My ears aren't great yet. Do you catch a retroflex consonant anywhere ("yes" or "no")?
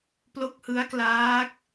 no